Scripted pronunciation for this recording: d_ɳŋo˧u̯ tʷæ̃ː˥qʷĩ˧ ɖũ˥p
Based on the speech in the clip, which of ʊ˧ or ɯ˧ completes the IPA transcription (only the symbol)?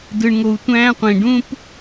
ɯ˧